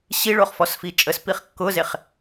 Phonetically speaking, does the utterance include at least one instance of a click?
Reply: no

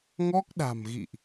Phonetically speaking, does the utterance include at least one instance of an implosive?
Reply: yes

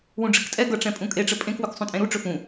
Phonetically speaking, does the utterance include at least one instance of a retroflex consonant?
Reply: yes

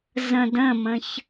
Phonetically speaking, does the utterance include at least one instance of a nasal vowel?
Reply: yes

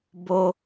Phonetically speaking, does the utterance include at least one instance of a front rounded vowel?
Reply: no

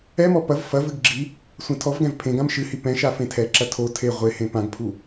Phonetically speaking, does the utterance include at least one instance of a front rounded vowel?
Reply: no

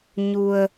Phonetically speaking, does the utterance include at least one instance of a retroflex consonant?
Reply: no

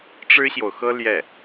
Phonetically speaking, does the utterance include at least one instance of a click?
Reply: no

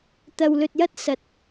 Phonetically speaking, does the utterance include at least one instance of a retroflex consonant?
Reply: no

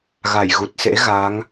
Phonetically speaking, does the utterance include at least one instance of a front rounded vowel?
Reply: no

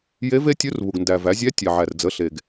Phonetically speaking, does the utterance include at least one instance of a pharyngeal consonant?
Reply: yes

